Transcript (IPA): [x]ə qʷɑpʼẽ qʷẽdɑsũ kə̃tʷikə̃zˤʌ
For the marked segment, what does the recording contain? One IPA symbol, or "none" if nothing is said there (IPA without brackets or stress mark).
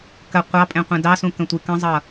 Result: k